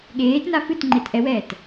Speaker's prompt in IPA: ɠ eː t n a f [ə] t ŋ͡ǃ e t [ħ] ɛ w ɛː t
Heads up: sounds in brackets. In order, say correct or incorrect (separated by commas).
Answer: incorrect, incorrect